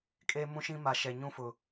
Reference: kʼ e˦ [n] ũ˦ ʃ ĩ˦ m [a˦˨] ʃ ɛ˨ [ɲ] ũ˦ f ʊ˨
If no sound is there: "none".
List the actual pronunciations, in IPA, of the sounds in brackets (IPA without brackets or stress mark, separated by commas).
m, a˨, ɲ